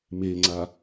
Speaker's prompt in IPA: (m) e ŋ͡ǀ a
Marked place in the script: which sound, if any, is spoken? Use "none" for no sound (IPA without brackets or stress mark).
m